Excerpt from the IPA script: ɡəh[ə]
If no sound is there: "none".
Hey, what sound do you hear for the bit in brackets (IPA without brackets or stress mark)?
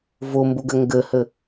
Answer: ə